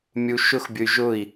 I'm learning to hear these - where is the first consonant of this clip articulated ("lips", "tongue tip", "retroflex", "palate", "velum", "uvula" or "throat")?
lips